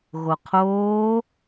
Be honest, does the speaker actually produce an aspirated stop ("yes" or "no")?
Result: yes